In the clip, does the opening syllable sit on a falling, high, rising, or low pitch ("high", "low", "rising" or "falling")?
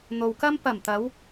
low